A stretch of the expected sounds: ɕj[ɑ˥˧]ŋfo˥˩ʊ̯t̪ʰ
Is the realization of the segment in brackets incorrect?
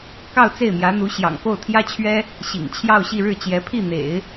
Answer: yes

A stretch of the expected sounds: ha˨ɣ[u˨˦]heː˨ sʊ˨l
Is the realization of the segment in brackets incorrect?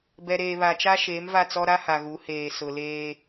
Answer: no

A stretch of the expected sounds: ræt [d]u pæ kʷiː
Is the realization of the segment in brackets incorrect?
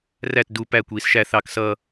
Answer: no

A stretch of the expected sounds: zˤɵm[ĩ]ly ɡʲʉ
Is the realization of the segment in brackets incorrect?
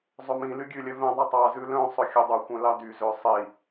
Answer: no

